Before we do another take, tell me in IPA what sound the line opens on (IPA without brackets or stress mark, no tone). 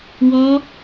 w